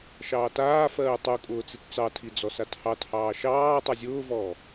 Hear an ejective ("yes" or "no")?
yes